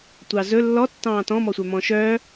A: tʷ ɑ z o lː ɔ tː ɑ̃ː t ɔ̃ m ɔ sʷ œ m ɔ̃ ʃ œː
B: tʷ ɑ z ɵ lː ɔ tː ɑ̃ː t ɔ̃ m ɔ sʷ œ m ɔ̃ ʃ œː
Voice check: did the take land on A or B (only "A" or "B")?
B